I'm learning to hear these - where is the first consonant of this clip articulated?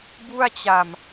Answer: lips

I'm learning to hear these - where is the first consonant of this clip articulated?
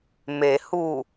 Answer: lips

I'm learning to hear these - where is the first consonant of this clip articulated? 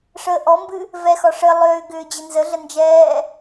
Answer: retroflex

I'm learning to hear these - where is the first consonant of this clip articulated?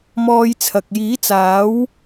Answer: lips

